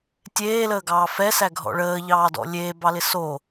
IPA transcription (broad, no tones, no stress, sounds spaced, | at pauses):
tʲ eː l əː ɡ ɑː f ɛ s æ ɡʱ ɔ̰ ɭ əː ʎ ɑː d ɔ̰ lʲ eː b ɑ l ɪ s o